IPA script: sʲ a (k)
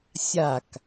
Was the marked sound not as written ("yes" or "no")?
no